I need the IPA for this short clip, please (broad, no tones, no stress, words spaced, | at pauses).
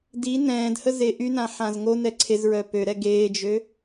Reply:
di nɛ̃ːdhəze ʔynãħãz ŋonɛ ǀʰezɹœ pøɾɛ ɡeːd͡ʒø